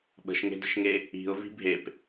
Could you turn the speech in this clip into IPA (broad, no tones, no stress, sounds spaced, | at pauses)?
ɓ ə̤ ʃ ŋ e̤ d ə̤ ʃ ŋ e | i̤ ʊ̯ v i̤ bʱ e p